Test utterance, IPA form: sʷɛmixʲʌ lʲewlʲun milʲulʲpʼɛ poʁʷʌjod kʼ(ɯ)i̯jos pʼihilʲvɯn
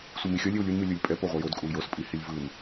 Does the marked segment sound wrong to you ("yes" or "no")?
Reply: yes